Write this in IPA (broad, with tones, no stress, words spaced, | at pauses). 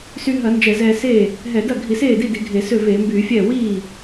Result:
sy˧ɦɐ˧˩˧ nd͡ʒɛ˧˩˧zɛː˧seː˥˩ | ɦɛ˧˩˧dɐ˥˩ ɡʱi˧˩˧seː˥˩di˥˩ di˧˩˧ɡʱe˧˩˧sø˥˩ veː˧˩˧mbyː˧˩˧fʲɛː˥˩ wiː˥˩